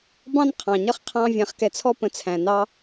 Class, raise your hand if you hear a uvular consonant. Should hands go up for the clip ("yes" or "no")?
yes